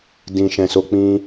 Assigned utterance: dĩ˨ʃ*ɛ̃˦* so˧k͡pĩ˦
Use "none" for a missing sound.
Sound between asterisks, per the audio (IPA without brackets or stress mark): ɛ̃˨